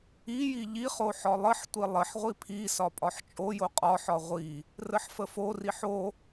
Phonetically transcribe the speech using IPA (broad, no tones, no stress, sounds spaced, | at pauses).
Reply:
i j i ʎ i χ o ħ ɒ lˠ ə ħ tʷ i lˠ ə ħ ʁʷ i pʰ i s ɒ pʼ ɒ ħ t͡ʃʼ o j o qʼ ɒ ħ ɒ ʁʷ i | r ə ħ f ə f o r i ħ o